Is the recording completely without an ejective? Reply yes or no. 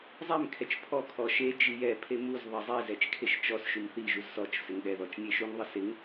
yes